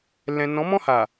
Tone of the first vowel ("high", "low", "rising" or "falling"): low